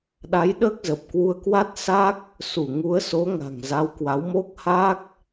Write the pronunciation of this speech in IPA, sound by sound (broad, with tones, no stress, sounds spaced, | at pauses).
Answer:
ɗ a˨˦ j ɗ əː˦˥ k̚ z ə˨˩ p̚ k w u˧ ə̯ k w a˦˥ t̚ s a˦˥ k̚ | s u˧˩ ŋ u˨˦ ə̯ s o˨˦ ŋ a̤˨˩ ŋ z a˨˦ w k w a˨˦ w m o˦˥ k̚ h a˦˥ k̚